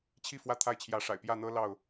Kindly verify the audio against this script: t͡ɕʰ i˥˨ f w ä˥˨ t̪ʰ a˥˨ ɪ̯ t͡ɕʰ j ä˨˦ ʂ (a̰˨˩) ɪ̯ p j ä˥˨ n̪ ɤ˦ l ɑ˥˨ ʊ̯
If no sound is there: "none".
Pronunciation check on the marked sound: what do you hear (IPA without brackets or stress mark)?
a̰˨˩